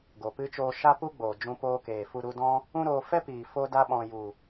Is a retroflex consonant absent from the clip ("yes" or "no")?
yes